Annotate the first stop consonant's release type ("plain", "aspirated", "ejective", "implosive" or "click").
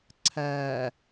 click